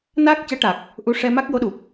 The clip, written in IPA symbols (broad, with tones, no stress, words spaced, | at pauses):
naː˦˥k̚cɛ˧˥ʈa˨˩k̚ | ʔu˧ʂɛ˧ ma˦˥k̚jo˧˥ɗu˨˩p̚